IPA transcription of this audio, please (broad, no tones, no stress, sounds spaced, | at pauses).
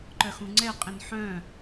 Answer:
ǃ œ x ũ ŋ͡ǀ ɛ qʼ ĩ n ħ œ̃